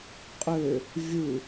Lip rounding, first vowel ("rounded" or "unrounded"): rounded